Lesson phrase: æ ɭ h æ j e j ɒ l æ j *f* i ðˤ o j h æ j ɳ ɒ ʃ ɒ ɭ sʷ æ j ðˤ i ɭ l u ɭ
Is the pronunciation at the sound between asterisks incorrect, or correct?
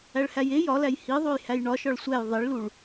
incorrect